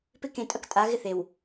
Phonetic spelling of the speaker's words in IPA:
p ɪ˦˨ k ẽ˨ tʼ ɐ˦ k tʼ a˨˦ ɣ ɪ˦ θ e˨ w

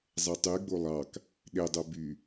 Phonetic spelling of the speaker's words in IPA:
zˤ ɛ tˤ y ɡ͡b o lˠ ɑ k | ɗ e dˤ o b y

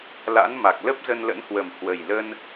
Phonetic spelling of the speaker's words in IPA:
l a̰˧˥ n m a˨˩ k̚ l ə˦˥ p̚ z ə˧ n l ə̰˧˥ n h w ə˨˩ m h w ə˨˩ j l ə˧ n

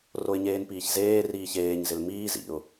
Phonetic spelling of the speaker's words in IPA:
r o ɪ̯ ɲ eː n p iː ç z eː r iː ç eː ɲ z ɪ l m iː z ḭ ʊ̯

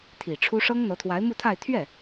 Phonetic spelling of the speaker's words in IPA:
t̪ʰ i˨˩ ʈ͡ʂʰ u˥ ʂ ɤ˥ ŋ n̪ ɤ˧˥ t̪ʰ w a˧˥ ɪ̯ m u˥˧ t̪ʰ a˥˧ ɪ̯ t̪ʰ ɥ ɛ˥˩

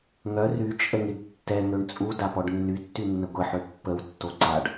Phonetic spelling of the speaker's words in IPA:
ŋ œ r y t͡ʃʼ ə ŋ i ɖ tː ɛ ŋ ø ɳ t͡sʼ u d a p ɔ ɖ nː y tː y nː ə ɡʷ ə ħ ø pː ə w tː o ǀ a ɖ

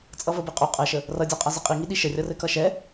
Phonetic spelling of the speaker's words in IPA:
t͡sʼ ʌ v ə b i qʼ u qʼ ɛ ʃ ə | r ʌ dʲ a qʼ a z ɘ qʼ i ŋ i ɗ i ʃ ə rʲ ʌ r ɘ k ʌ ʃ ɛ

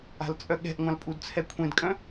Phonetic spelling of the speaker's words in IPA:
a̤ l t͡sʼ œ ɠ ɛ̤ ʔ ŋʷ ã l pʼ u d t͡sʰ ɛ kʷʰ ẽ d kʼ œ̃

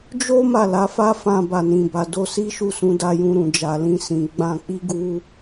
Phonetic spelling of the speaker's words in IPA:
d͡ʒ o˦ m a˦˨ l a˨˦ f a˦ f ã˧ b a˨ n ĩ˨ b a˨ d o˧ s i˦ ʃ u˦˨ s ũ˨˦ d a˧ j ũ˧ ɾ ũ˨ d͡ʒ a˨ l ĩ˧ s ĩ˨ ɡ͡b ã˧ k͡p i˦ ɡ u˦

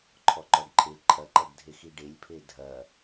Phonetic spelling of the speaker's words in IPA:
ǃʰ ɔ ǃ ɔ ɖ ǃʰ e ǃʰ ɐ ǃ ɐ ɡ dʱ e x i ɖ e lʲ pʰ e dʱ ɐ

